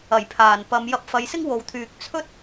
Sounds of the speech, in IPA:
ɐ˨˩ j pʰ aː˨˩ n p ɐ˨˧ m j ɐ˧ p̚ f ɐ˨˧ j s ɪ˥ ŋ w o˨ w t̪ʰ yː˨ k̚ t͡sʰ ɵ˥ t̚

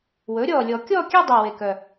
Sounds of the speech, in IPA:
w ɵː˩˥ ɾʲ ɔː˨˩ lʲ ɔ˨˩˦ kʲ ɔː˥˧ kʲ ɛ˥˧ dˤ ø˨˩ w e˨˩ k œ˨˩

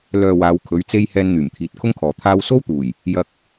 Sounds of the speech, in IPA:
l œː˨ w aː˨˧ w kʰ ɵ˨˥ ɥ t͡s e˥ j h ɛː˧ n n̪ yː˨˩ m t̪ʰ iː˨ t̚ kʰ ʊ˥ ŋ kʰ ɔː˨ t̪ʰ aː˧ w s o˥ w t̪ uː˨˩ j | j ɐ˧ k̚

